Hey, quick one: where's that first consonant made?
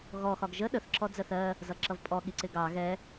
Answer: velum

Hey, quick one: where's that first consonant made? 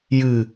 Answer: palate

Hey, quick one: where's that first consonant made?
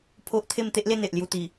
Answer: lips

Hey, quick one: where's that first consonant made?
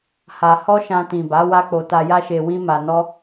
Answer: throat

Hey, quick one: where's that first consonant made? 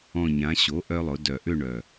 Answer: palate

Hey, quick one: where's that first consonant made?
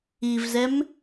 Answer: lips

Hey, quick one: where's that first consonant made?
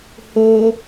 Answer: throat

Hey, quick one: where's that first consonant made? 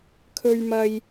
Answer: velum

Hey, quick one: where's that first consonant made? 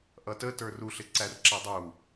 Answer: throat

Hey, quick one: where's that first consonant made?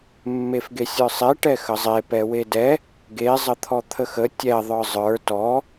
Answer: lips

